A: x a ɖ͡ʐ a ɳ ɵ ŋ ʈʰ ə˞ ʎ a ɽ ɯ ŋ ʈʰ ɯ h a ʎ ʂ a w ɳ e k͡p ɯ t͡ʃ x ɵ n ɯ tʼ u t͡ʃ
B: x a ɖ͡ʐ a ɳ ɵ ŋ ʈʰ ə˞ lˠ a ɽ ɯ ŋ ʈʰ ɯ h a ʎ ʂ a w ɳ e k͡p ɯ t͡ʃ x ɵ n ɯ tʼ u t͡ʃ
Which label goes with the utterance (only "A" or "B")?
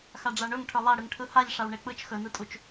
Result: B